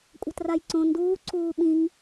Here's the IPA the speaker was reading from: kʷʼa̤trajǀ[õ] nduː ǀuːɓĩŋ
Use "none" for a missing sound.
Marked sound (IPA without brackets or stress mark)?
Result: õ